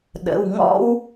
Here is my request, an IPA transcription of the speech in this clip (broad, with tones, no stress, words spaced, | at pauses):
ɗə̰˩˧˩wŋɔ̰˥w